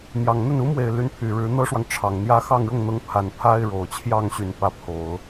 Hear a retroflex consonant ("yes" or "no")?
yes